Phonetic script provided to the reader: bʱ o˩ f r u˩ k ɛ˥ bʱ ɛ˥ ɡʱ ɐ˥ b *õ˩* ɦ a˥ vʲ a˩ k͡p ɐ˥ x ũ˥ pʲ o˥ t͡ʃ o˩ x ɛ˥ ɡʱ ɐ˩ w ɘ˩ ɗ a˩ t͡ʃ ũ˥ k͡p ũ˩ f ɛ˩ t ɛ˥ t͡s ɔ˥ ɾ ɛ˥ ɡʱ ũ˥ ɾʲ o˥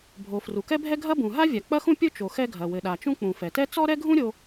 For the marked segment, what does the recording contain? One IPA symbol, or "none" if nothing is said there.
ũ˩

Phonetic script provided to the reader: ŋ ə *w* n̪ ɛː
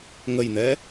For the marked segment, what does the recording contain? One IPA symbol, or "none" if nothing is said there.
j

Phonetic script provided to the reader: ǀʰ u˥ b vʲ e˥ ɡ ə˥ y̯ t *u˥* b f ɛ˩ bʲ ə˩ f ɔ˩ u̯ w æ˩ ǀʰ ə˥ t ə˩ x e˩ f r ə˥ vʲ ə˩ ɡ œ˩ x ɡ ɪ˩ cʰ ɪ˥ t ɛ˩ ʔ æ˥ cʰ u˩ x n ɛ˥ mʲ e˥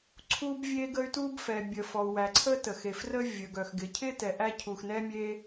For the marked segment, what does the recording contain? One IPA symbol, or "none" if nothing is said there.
u˥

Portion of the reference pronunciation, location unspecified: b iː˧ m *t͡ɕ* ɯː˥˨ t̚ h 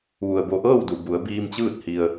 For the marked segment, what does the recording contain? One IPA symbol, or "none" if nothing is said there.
t͡ɕ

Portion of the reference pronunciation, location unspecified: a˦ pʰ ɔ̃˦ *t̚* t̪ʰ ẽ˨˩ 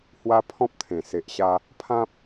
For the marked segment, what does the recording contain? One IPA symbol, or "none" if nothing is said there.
p̚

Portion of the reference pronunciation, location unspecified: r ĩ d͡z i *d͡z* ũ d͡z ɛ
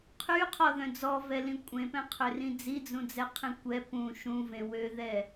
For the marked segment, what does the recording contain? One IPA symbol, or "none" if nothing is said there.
d͡z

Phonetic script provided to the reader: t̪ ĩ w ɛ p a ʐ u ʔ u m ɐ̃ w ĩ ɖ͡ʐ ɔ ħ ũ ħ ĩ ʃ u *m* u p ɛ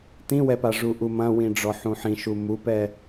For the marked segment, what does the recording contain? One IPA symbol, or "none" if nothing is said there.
m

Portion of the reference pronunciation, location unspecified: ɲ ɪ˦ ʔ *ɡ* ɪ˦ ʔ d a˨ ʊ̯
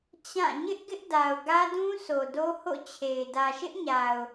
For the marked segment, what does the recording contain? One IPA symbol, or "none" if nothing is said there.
ɡ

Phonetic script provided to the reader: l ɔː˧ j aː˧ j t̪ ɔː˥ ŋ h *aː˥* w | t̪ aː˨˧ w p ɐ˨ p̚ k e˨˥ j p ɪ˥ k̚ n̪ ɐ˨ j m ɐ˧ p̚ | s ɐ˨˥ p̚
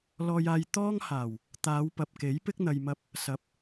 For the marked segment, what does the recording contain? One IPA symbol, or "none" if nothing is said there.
aː˨˩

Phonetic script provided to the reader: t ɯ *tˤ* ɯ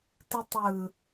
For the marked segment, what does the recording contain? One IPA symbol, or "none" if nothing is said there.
tˤ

